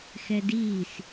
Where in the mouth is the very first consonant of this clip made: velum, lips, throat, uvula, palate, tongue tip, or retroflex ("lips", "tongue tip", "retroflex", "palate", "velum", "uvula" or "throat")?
velum